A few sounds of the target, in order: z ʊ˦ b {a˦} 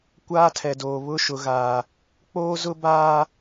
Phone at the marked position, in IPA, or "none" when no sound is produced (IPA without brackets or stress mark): aː˦